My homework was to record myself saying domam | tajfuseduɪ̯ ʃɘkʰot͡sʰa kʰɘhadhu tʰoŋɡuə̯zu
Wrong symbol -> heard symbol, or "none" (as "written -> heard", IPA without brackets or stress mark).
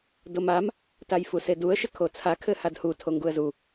ɪ̯ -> ə̯